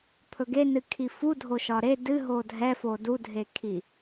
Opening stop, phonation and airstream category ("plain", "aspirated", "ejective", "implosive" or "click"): aspirated